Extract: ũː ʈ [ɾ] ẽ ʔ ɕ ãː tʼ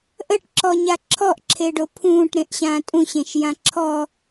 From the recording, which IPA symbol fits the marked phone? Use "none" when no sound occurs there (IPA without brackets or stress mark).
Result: ɾ